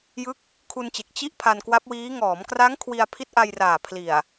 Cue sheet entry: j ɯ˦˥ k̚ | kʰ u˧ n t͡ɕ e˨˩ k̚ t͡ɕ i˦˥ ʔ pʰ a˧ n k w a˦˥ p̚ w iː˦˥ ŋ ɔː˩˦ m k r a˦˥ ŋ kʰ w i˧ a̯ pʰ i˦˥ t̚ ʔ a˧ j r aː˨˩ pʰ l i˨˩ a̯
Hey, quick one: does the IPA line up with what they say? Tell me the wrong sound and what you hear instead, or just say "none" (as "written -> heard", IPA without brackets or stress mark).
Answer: none